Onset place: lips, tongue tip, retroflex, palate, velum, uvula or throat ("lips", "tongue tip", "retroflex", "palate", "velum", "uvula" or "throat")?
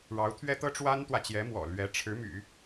retroflex